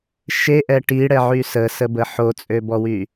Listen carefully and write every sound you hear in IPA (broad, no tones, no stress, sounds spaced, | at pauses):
ʃ e ʔ ɛ ʈ i ɽ ɛ ʕ y s ə s ə b ə ħ o t͡sʼ ø b ɔ w y